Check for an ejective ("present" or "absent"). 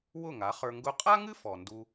present